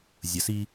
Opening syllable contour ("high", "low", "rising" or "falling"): low